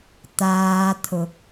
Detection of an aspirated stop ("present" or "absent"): present